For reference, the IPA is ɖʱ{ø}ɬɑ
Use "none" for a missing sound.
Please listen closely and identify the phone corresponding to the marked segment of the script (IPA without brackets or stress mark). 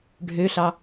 ø